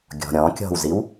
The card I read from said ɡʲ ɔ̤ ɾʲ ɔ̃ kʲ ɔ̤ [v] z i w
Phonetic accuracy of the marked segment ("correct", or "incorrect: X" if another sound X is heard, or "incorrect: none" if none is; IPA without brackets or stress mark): incorrect: w